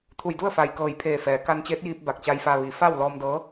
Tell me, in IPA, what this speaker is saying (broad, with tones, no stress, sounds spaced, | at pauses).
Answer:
t̪ʰ u˧˩ j d u˥˨ ə̯ f a˩ j k ɤː˧˩ j pʰ eː˧˩ f ɛː˩˧ k a˧ n t͡ɕ eː˧˥ t̚ j iː˧ p̚ b a˧˩ k̚ t͡ɕ a˧ j f a˧ ʋ i˩˧ f a˥˨ w l ɔː˧ m d ɤː˧˥